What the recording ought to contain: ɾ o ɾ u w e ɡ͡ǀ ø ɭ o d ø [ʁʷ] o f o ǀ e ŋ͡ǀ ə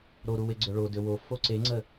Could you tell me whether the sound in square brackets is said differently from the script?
yes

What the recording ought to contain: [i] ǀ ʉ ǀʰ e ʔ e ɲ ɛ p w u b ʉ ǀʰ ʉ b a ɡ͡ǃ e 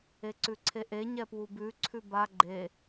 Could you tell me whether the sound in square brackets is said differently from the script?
yes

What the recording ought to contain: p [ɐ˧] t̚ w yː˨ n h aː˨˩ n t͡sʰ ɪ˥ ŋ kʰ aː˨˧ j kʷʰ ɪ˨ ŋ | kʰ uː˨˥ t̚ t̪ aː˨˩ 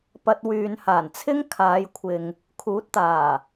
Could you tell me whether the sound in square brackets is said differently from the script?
no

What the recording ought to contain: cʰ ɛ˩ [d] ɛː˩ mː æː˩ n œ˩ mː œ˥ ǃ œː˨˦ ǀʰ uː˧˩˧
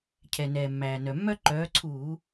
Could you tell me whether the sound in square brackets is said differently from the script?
yes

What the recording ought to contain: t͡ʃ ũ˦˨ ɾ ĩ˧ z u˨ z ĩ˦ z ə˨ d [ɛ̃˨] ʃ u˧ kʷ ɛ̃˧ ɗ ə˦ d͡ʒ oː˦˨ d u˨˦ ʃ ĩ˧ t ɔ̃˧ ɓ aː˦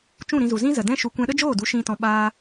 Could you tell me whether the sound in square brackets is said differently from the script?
yes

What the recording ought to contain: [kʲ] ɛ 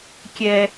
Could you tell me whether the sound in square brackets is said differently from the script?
no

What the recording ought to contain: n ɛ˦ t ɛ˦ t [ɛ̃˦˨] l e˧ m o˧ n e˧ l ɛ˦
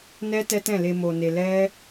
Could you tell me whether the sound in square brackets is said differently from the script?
no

